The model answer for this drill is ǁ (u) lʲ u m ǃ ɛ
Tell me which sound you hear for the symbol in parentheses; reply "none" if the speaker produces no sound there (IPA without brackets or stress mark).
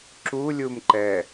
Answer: u